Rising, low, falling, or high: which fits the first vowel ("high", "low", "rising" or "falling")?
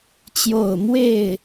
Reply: falling